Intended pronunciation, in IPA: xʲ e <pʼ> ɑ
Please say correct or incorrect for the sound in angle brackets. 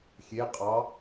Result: incorrect